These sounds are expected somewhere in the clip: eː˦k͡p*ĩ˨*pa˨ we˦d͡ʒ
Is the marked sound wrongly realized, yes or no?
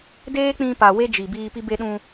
yes